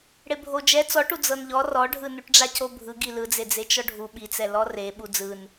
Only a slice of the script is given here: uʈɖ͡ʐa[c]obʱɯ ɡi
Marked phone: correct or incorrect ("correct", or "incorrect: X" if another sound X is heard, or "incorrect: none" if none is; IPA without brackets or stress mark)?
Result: correct